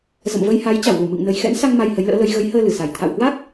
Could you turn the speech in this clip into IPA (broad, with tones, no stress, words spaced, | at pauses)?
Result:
zə̰˧˨mvə˧jha˨˦j t͡ɕa˧˩wlu˧˩mɨ̰˧˨ŋ nə˨˩jxɛ̰˧˥nsa˧ŋ ma˧jhə˨˦jlə̰ː˧˥lə˨˦j ɣə˨˦jhəː˧lɨ˧˩ sa˨˩j t̪ʰa̰˧˨whwa˦˥k̚